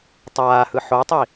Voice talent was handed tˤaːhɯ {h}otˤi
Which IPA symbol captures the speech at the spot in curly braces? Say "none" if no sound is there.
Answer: ħ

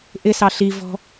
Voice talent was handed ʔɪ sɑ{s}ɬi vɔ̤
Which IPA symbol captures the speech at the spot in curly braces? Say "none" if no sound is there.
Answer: none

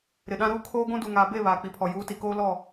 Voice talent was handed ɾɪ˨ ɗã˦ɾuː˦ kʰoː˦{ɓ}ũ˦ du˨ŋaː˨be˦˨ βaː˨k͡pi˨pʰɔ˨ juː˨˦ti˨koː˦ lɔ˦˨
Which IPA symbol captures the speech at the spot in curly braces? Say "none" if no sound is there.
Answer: ɡʷ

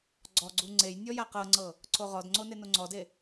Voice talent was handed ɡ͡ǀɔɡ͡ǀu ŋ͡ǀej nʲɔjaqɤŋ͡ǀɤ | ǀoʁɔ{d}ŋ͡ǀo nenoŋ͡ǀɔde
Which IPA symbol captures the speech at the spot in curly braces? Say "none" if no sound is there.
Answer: d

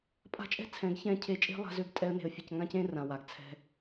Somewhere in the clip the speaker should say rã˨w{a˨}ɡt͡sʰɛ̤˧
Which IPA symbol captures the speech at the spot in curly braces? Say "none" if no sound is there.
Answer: a˨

